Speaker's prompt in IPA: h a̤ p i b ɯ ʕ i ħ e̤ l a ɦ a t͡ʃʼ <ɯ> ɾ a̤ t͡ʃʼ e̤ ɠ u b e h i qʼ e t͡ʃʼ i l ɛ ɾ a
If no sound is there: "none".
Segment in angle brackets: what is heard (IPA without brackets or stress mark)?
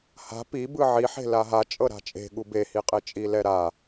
ɤ